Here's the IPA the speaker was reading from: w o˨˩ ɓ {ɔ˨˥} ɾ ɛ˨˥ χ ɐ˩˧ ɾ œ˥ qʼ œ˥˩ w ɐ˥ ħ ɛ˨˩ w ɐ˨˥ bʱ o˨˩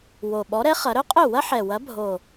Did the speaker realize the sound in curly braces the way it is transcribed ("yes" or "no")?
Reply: yes